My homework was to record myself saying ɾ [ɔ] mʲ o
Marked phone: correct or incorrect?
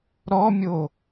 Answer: correct